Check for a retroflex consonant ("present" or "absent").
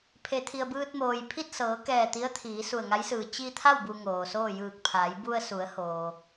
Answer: absent